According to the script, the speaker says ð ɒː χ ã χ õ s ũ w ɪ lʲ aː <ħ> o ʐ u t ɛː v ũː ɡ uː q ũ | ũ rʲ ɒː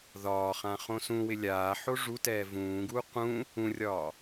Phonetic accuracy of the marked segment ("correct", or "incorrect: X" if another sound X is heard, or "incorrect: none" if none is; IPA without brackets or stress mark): correct